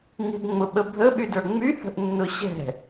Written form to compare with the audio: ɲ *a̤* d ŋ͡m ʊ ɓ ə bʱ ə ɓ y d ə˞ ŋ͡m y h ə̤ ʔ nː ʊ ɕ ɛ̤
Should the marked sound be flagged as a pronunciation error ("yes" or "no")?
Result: yes